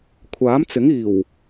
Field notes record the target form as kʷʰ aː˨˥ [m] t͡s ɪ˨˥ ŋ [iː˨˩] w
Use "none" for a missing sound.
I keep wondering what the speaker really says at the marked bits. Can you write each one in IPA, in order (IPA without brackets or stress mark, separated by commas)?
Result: m, iː˨˩